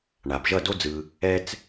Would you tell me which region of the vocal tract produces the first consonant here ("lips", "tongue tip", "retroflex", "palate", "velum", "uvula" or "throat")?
retroflex